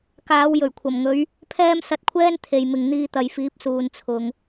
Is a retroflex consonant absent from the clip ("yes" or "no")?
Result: yes